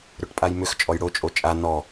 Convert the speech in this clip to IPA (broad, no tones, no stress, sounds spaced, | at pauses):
ɾ ʏ ʈ pʼ a j m ʏ x t͡ʃʼ ɔ j ɽ o t͡ʃʼ o t͡ʃʼ a n ɔ